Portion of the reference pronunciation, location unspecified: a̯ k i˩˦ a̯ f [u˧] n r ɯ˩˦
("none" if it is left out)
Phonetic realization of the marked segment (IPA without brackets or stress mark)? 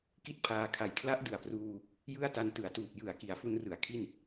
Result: u˧